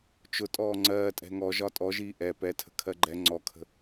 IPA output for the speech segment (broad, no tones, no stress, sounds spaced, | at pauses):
t͡ʃ ʊ tʼ ɔː ŋ͡ǀ ɜː tʼ ɛ̤ ŋ ɔ ʒ ɒ tʼ ɔ ʒ iː ʔ ɛ p ɛ tʰ ə̤ kʰ ɜ ɡ͡ǃ ɛ ŋ͡ǀ ɔ kʰ ə̤